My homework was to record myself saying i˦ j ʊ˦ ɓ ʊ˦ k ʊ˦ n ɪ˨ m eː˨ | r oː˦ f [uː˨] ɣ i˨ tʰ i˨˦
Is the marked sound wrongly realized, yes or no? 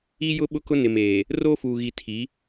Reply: no